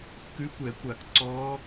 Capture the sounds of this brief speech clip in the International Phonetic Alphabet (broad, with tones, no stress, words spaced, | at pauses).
kʉ˧˥kʷɛ˧˩˧kʷa˧˩˧k ǀɔː˧˥